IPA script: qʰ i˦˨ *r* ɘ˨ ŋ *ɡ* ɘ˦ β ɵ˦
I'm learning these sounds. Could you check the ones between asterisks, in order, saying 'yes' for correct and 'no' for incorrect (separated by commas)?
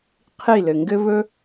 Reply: no, yes